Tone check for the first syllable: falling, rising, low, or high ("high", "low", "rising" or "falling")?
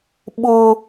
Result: high